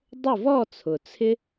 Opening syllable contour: falling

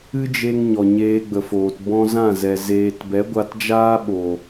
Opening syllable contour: high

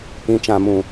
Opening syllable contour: low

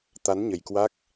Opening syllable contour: rising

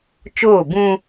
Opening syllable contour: falling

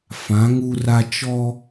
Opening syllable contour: rising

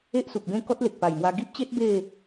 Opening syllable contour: high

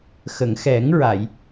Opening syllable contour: low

